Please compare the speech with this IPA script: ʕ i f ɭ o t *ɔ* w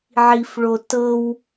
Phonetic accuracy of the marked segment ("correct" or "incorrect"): incorrect